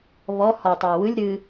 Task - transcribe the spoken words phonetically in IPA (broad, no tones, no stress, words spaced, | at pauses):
βɔ hɔtˤœ wɯlʲ ɾɨ